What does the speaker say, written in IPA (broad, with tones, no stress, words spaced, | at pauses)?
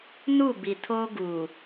nu˦˨bi˨tʰoː˦ ɡuː˨